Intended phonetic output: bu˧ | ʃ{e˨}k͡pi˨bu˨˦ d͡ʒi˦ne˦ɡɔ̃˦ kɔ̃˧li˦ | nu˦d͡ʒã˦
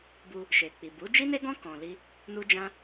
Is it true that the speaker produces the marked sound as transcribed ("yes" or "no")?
yes